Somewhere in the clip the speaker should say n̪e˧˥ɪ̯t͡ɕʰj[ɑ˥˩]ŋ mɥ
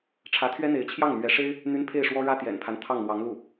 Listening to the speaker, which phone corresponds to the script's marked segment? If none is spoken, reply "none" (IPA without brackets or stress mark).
ɑ˥˩